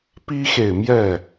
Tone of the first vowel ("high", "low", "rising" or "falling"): high